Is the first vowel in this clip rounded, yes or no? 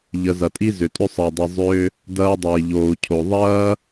no